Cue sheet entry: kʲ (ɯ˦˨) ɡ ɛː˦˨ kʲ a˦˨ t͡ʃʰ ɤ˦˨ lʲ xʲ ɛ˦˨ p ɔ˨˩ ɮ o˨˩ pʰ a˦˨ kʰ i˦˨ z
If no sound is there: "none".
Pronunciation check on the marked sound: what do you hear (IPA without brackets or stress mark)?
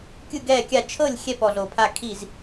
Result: ɯ˦˨